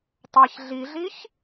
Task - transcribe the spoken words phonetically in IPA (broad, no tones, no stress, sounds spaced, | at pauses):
tˤ a ç ɮ i ɮ i ç